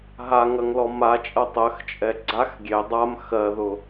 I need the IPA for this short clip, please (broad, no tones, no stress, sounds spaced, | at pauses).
ɦ a ŋ ɐ ŋ l ɔ m a t͡ʃʼ ɐ tˤ ɜ x t͡ʃʼ ɛ ɡ͡ǀ a x ɡʲ e dˤ a m x ɜ ð ʊ